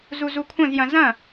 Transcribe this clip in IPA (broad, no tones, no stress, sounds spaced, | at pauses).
z u z u kʷʰ ɐ̃ z j ɐ̃ z ɐ̃